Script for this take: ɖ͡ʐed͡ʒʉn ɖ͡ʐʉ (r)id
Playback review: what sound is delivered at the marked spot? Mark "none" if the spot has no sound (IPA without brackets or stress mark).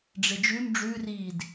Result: r